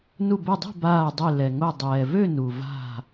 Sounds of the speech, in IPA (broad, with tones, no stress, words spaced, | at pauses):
nu˧˩bɛ˧˩dˤe̤˥˨ baː˧˩dˤø˧˩ lɛ˩ŋo˧˩ dˤɛː˩vø˥˨ nu˩va̤˧˩